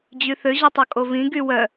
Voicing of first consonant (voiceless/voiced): voiced